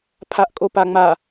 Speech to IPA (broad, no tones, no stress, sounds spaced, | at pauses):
pʰ a ʔ kʼ o p a ŋ͡m a